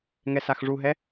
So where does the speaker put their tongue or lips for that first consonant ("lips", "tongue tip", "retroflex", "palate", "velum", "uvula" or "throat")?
velum